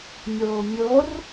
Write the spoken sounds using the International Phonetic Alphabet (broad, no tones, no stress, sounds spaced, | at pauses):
mʲ oː mʲ o r